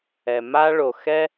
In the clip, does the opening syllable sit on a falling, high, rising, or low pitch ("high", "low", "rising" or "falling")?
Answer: low